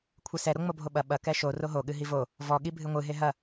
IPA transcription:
kʷʰɘsɛ ɾoŋ͡mobʱoɓɐ ɓɐ kɛʃo roɦo ɠɨɦivo | vɔ ɠibʱɨŋʷɨ ɦeɦɐ

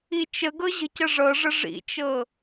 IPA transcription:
it͡ʃəɡɤ ʑə̤cəʐɤʐə ʐḭt͡ʃɤ

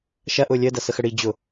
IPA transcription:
ʃɐʔʊː lʲəːdɐsəxə ɽi d͡ʑʊ

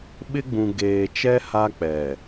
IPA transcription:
ɓɪ˦ɡ͡bũ˨ ɡeː˨t͡ʃɛ˦ ha˦k͡pɛ˨

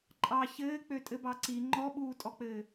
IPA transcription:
ǃʼɑ çɘː k͡pøtʼɘbɑǀi ŋ͡ǃɔɓuːtʼɔk͡pɘː

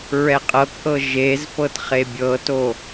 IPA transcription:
ɹɛqʼɤkʔɤ ʒezpɤtχe bʲɤto

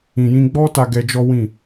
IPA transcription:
ĩ˨jĩ˧ɡ͡bɔ˦ta˧ ɡɛ˧d͡ʒɔ˦ wĩ˦˨

